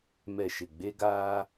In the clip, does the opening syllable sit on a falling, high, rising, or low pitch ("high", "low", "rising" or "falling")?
falling